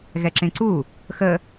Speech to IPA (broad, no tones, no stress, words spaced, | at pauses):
ɣɛǁẽǀu | xə